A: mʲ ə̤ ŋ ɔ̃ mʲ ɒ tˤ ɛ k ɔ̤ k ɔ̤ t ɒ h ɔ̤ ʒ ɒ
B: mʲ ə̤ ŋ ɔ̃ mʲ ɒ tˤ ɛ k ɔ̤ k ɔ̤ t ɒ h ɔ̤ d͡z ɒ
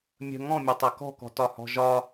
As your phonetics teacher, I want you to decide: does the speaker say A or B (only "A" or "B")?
A